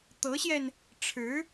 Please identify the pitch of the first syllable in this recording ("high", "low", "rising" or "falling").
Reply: rising